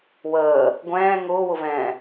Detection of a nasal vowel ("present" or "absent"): present